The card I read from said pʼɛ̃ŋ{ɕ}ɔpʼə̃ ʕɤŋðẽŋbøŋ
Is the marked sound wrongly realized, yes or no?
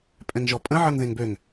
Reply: yes